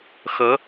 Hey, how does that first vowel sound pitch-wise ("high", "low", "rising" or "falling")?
rising